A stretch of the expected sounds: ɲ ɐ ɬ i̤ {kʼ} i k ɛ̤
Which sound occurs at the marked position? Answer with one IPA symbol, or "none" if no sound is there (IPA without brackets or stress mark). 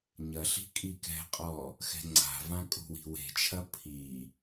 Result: kʼ